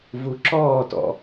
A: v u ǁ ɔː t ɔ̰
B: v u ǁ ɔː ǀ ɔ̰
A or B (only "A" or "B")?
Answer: A